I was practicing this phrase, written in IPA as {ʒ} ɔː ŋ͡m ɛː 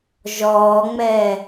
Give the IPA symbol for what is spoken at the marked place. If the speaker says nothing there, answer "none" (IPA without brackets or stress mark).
ʒ